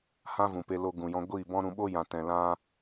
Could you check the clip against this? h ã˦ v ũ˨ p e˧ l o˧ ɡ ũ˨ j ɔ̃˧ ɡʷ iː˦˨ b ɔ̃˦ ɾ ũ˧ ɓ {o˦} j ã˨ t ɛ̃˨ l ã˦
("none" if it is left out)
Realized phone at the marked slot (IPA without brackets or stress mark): o˦